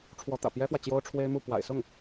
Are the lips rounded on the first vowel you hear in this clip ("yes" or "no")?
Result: yes